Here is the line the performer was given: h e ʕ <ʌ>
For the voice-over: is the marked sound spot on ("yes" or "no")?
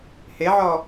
no